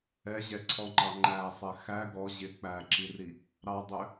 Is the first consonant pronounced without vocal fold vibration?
no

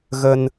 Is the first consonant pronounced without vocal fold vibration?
no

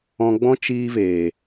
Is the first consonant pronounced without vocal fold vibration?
no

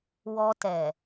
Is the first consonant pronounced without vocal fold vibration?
no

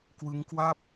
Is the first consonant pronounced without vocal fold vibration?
yes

